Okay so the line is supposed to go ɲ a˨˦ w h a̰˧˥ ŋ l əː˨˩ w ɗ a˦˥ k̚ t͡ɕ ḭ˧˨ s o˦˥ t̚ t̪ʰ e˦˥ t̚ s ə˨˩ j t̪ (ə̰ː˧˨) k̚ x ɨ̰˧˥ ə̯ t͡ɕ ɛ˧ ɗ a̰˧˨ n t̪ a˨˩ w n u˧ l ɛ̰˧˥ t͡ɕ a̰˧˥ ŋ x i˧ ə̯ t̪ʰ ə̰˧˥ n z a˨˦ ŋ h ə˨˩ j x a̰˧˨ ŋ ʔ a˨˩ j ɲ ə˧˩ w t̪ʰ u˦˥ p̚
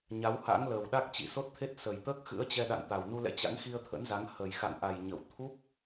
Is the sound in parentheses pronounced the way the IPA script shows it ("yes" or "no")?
no